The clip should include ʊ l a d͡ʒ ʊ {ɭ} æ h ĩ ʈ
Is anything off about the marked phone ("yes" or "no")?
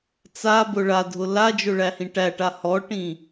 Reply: no